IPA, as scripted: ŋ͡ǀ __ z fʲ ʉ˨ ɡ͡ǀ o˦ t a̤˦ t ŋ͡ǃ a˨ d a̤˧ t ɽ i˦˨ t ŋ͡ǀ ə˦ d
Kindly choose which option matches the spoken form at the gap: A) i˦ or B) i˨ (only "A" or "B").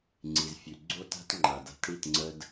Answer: B